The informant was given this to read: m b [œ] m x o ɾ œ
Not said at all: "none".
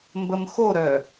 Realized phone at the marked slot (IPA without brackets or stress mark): ə